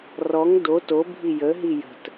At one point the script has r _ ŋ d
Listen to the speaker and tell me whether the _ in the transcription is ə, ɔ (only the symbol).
ɔ